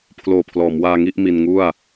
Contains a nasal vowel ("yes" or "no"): no